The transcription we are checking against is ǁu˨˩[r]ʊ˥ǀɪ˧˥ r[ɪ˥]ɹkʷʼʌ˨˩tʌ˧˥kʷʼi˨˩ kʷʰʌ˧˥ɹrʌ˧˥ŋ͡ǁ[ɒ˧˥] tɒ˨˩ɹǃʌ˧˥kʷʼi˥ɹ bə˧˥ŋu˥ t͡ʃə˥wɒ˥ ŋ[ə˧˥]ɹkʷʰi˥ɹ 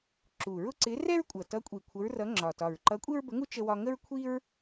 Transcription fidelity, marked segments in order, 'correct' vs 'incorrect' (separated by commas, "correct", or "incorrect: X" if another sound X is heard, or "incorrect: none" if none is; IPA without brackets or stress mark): incorrect: ɹ, incorrect: ɛ˥, incorrect: ɒ˨˩, incorrect: ə˥